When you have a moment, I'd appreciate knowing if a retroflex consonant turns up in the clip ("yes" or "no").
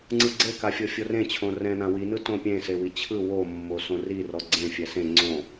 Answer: no